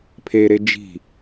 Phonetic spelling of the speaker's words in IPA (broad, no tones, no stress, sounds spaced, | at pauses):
pʰ e ɾ e d͡ʒ i̤